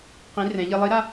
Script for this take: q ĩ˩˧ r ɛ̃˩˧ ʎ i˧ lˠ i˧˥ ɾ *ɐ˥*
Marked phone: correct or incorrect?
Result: incorrect